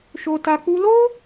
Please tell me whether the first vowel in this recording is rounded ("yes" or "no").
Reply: yes